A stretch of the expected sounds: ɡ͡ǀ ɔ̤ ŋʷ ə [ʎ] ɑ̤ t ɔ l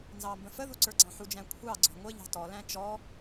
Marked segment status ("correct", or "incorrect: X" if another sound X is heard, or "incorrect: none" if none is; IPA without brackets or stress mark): correct